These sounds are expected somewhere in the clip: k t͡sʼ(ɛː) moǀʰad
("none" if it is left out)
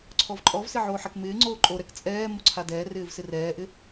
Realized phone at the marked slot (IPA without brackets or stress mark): ɛː